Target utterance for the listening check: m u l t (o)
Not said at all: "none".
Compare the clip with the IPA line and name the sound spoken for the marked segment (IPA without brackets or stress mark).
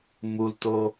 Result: o